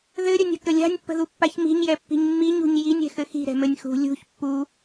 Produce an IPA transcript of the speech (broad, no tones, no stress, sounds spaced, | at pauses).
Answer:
ð ɘ ɾʲ ə nʲ ə̤ k ə lʲ a̤ nʲ pː ə̤ ð u pː a ç m i̤ ɲ j ɛ pː i̤ ɲ mː i ɲ ṳ ɲ j i nʲ ɛ̤ x ɘ x i̤ ɾ ɛ̤ m ɘ nʲ x ṳ lʲ ṳ ç pː u